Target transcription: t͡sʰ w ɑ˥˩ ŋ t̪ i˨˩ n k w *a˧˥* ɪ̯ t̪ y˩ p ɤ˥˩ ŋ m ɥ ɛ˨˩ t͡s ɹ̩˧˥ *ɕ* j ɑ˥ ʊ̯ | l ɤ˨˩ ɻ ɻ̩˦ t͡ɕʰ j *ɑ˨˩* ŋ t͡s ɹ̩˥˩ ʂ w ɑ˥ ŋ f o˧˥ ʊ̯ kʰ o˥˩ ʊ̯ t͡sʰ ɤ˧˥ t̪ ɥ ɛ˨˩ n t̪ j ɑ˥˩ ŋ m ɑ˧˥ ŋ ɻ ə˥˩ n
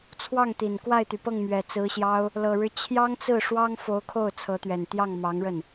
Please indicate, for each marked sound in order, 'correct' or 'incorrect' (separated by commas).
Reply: incorrect, correct, incorrect